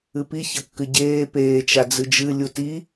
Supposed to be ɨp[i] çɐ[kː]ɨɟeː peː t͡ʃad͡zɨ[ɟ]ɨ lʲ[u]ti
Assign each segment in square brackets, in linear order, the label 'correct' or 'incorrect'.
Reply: correct, correct, incorrect, correct

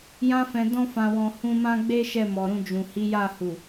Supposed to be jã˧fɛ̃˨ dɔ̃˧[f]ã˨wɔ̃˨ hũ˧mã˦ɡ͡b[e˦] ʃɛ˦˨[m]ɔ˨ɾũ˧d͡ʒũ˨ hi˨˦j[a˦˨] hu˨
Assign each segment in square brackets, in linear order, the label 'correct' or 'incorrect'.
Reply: correct, correct, correct, correct

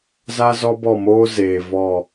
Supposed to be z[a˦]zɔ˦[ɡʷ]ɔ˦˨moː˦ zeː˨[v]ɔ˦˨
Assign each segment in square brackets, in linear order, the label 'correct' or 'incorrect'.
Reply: correct, incorrect, correct

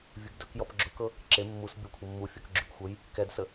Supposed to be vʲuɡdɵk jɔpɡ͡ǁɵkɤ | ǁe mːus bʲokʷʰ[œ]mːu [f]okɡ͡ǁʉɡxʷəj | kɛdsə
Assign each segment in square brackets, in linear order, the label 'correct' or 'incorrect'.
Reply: incorrect, incorrect

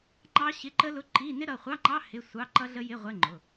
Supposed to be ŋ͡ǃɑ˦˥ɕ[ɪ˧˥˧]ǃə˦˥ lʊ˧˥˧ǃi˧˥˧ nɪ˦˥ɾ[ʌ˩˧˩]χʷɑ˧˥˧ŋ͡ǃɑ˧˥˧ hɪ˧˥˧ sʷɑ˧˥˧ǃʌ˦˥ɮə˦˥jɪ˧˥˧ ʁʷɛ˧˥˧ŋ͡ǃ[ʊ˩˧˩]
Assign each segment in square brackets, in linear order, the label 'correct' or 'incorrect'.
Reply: correct, correct, correct

